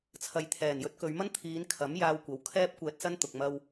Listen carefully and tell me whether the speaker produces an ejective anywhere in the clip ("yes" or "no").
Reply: no